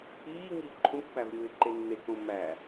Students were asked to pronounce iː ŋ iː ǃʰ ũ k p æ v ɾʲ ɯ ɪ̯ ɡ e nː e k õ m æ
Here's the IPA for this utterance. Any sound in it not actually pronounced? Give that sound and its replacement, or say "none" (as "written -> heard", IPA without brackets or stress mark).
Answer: ɡ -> ǃ